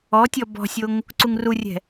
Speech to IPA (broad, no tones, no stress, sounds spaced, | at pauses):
ɔ tʲ ɔ b ɔ̤ sʲ o ŋ | ǀ u ŋ r u rʲ ɛ̤